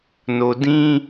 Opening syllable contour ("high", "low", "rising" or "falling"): low